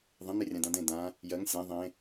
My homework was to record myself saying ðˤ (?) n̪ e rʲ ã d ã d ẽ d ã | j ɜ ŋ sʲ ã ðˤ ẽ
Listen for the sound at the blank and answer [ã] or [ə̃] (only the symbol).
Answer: ə̃